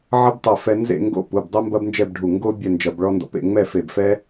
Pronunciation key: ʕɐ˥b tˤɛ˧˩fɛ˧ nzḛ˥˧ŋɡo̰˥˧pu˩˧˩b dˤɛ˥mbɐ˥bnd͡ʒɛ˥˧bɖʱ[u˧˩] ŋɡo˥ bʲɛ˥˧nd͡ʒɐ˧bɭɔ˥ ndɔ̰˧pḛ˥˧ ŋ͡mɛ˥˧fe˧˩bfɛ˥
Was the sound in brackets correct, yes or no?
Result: yes